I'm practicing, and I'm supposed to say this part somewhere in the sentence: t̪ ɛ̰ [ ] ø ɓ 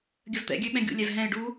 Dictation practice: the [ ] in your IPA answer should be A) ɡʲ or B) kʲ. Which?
A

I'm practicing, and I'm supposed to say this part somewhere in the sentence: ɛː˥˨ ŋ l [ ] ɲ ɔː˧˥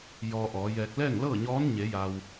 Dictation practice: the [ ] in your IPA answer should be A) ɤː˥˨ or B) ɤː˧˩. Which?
A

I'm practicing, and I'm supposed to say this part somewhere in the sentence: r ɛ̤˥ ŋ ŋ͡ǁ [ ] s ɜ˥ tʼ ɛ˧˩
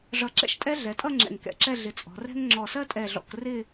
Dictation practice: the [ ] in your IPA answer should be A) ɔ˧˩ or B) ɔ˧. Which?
A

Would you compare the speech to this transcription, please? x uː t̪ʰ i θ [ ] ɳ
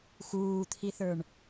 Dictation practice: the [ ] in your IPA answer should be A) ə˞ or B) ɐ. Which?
A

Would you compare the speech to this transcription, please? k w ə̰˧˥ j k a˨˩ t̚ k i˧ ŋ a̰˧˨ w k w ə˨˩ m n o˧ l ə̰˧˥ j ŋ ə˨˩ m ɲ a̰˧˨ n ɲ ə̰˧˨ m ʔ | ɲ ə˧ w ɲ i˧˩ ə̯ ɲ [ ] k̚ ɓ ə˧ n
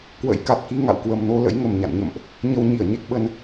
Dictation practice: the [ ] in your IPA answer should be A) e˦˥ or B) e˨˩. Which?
A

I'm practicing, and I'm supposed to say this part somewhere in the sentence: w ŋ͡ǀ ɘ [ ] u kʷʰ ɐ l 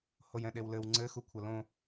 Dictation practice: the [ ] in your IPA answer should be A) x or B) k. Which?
A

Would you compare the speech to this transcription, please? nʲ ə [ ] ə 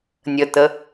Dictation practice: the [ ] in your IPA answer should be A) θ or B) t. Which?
B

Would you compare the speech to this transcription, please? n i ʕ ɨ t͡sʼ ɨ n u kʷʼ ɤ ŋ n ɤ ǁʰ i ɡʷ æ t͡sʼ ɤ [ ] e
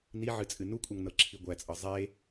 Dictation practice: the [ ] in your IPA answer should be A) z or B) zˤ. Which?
B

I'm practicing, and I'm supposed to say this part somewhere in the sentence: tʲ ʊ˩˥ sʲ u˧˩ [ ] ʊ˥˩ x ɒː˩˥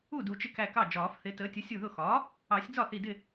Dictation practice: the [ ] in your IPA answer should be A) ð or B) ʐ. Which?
A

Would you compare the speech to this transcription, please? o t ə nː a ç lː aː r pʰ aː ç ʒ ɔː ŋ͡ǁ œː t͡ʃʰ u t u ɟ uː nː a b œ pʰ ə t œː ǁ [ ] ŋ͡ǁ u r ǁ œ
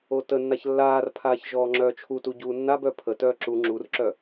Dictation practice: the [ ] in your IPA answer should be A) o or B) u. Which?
B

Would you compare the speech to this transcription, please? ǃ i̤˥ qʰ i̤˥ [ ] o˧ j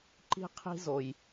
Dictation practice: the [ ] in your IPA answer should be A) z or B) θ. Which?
A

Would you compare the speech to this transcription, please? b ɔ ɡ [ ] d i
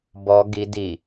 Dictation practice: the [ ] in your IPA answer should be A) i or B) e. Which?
A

